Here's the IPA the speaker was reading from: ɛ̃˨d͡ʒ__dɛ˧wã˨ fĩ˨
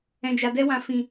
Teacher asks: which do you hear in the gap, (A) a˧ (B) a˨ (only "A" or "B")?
B